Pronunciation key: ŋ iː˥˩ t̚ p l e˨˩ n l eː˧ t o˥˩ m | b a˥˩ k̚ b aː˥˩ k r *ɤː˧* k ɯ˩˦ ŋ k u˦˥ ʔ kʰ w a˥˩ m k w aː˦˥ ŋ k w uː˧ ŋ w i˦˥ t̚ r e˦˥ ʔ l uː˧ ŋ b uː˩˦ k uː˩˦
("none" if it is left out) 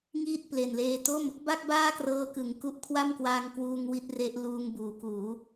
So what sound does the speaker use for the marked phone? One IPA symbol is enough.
ɤː˧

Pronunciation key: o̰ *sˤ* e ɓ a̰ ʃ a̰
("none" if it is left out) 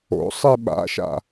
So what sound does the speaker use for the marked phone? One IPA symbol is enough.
sˤ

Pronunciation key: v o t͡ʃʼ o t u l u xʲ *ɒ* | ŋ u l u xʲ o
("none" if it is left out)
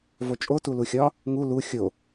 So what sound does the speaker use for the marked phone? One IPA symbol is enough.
ɒ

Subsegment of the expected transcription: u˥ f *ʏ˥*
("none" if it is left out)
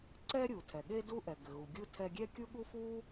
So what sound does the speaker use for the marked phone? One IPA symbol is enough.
u˥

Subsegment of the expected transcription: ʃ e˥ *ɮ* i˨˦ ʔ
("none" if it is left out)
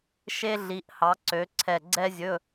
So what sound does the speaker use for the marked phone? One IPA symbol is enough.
ɮ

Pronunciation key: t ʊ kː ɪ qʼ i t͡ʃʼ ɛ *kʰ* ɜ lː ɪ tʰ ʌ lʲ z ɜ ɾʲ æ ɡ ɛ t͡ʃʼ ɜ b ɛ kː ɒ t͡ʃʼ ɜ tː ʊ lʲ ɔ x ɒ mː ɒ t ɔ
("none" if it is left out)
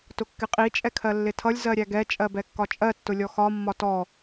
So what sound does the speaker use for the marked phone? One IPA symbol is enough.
kʰ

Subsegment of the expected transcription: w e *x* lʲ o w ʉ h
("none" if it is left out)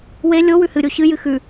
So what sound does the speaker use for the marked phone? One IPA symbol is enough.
none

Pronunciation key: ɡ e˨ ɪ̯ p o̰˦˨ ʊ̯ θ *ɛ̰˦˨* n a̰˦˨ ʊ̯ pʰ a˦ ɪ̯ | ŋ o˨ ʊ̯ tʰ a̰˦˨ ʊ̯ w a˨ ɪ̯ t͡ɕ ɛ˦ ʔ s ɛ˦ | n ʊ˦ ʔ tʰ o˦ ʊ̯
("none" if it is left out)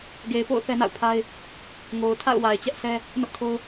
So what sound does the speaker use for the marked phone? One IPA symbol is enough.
ɛ˦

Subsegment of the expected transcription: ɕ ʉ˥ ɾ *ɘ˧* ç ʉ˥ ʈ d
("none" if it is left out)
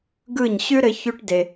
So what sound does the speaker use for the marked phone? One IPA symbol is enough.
ɘ˧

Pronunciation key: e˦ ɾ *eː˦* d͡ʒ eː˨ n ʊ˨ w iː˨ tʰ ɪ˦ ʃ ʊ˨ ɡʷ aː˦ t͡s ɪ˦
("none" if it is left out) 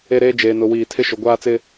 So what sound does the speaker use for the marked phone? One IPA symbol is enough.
eː˦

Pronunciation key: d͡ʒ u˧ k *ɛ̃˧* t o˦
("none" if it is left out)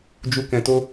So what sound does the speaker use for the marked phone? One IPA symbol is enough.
ɛ̃˧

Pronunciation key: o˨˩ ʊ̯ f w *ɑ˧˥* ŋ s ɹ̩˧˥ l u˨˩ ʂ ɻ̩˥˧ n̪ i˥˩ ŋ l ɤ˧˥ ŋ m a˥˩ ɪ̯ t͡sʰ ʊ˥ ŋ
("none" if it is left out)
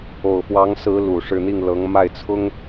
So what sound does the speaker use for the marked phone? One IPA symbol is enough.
ɑ˧˥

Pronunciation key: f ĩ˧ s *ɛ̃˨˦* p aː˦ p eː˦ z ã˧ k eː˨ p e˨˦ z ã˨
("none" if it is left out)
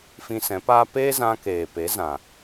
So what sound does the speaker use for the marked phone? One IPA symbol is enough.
ɛ̃˨˦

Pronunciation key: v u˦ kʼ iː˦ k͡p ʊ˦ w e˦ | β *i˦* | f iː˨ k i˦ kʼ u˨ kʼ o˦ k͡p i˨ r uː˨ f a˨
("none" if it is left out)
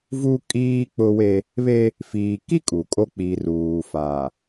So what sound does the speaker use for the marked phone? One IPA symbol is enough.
e˦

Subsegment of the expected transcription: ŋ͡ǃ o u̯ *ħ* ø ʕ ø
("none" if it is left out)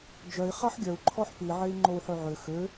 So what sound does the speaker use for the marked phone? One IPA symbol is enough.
ħ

